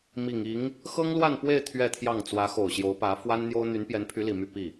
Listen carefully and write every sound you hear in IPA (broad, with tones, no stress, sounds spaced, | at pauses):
m i˨˩ ŋ i˧˥ ŋ | x ɤ˥ ŋ l w a˥˧ n p w e˥˧ ɪ̯ t̪ʰ ɥ ɛ˥˧ t̪ʰ j ɑ˥˩ ŋ t͡s w ä˧˥ x o˨˩ ʊ̯ ɕ j o˧˥ ʊ̯ p ä˧˥ f w a˥ n n̪ j o˥ ʊ̯ n̪ y˧˥ n p j ɛ˧˥ n pʰ y˧˥ l i˨˩ m y˥˧ p i˥˩